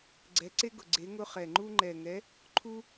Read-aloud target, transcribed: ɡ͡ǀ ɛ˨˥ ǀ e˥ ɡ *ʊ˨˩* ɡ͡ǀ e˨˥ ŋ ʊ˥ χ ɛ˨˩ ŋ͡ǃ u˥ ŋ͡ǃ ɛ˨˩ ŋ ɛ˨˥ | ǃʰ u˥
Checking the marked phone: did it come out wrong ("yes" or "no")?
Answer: no